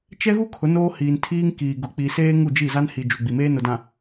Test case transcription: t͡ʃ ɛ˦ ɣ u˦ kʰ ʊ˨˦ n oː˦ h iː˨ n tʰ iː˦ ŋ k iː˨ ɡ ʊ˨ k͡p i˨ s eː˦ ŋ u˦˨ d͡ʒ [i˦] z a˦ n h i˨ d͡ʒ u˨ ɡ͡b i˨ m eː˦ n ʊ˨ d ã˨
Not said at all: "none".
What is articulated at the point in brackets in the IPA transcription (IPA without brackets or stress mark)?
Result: i˦˨